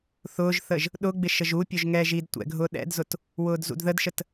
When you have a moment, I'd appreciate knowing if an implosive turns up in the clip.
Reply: yes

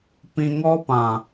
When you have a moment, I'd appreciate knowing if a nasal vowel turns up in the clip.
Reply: yes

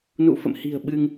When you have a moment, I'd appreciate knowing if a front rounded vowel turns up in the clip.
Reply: no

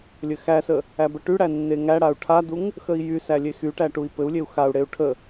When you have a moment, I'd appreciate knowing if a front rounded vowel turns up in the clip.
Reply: yes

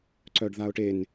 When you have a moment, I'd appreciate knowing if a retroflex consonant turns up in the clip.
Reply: yes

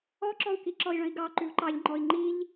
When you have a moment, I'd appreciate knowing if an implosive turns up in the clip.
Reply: no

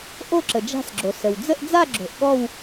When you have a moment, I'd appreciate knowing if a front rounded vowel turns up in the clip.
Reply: no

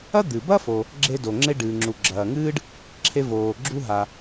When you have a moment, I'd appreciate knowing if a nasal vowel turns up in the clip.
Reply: no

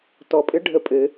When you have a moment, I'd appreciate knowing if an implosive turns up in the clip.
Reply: no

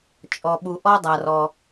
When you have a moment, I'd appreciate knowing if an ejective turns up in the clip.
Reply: yes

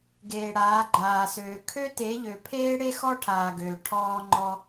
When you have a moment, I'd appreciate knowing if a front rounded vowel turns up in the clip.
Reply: yes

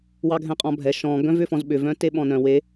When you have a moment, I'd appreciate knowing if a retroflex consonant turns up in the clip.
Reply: no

